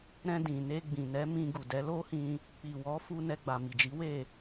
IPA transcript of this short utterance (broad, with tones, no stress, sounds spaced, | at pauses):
ɾ ɛ̃˧ d ĩ˨ n e˧ ɡ͡b ĩ˨ n ɛ˨˦ m ĩ˧ ɡ u˨ d ɛ˨˦ l o˦ h ĩ˧ | k͡p i˨ w ɔ˨˦ f u˧ n ɛ˧ ɡ͡b a˨ m i˨ d͡ʒ i˨˦ w e˦˨